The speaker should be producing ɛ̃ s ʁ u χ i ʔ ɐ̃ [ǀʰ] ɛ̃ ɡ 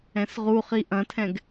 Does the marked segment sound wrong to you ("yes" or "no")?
yes